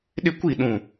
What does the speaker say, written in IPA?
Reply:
ɗ ɪ˦ kʷ i˦˨ ɗ ũ˦˨

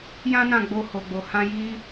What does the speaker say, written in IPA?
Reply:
j ã˦ n ã˦˨ ɡ͡b o˧ h o˨ ɡ͡b o˨ h ã˧ j i˧

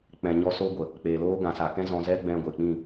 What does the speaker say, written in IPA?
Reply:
k͡p ɛ̃˨ ɲ ɔ˧ s oː˦ ɡʷ ə˨ | k͡p eː˨ l oː˦ ɡ ã˨ s a˨ k ɛ̃˦ z ɔ̃˧ z ɛ˦ ɡ͡b ɛ̃˧ ɡʷ e˨ k͡p ĩ˦˨

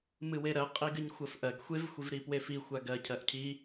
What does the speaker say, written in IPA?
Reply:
m ɨ w e ɾ ɜ qʼ i ɡ ɨ ɲ xʷ ɜ f ʔ ɜ ɡ xʷ e v xʷ i v ɾ i p w e f i xʷ a ɡ ɜ cʰ ɜ ʔ cʰ i

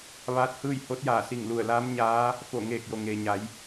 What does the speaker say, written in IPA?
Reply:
ʋ aː˧˥ t̚ h ɯː˥˨ j h o˧˥ t̚ j aː˧˩ s i˧˩ ŋ l u˧˩ ə̯ l aː˧˥ m ɲ aː˧˥ | f o˧˩ ŋ eː˧˩ k̚ j o˩ ŋ eː˩ ɲ a˩˧ j

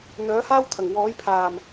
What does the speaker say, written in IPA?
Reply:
n̪ œː˨˥ h aː˥ w t̪ʰ ɐ˨˩ ŋ w ɔː˨˥ j pʰ aː˨˩ m

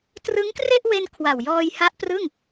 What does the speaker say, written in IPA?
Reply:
t r ɯ˦˥ ŋ k r e˥˩ ʔ w e˧ n kʰ w a˨˩ w j ɔː˧ j h a˦˥ ʔ p r ɯ˥˩ ŋ

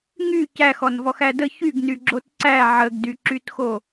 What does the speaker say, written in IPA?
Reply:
ŋ y c æ x ɔ n v ɔ x æ d ə ç y ɡ n y ɡ͡ǁ o t ǀ æ ʕ ə ɡ d y ǁ y t x o

